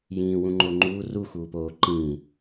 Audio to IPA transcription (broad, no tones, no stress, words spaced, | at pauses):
jĩː wũŋ͡ǃoŋ͡ǃuː ru xuːpoː ǃĩː